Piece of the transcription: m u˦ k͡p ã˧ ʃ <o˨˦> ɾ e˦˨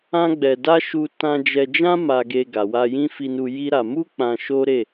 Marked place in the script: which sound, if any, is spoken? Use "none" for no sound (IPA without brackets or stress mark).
o˦